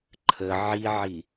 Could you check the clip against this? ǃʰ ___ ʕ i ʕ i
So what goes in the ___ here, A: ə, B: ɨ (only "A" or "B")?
A